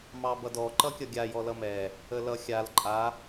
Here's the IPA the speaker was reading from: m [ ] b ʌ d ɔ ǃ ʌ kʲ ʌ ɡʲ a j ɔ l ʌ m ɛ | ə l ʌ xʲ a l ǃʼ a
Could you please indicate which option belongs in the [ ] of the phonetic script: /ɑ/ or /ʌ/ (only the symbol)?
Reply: ɑ